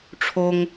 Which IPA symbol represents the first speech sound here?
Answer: ʈ͡ʂʰ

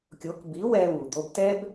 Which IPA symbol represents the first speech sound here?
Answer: kʲ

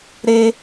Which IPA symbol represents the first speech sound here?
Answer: ɾ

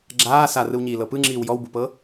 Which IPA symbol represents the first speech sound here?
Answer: ɡ͡ǁ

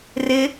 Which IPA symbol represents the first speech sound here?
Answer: r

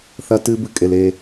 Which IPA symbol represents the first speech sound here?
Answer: θ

